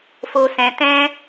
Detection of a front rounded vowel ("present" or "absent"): absent